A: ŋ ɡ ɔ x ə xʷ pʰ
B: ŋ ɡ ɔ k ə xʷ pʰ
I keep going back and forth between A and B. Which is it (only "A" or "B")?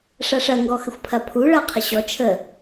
A